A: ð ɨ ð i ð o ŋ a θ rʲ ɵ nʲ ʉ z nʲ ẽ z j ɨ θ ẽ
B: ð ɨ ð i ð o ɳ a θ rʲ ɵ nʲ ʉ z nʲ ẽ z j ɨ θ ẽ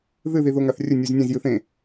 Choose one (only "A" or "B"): A